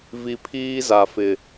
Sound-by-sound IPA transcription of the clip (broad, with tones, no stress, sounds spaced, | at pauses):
v i˨ pʰ iː˦ z a˨ f ɪ˨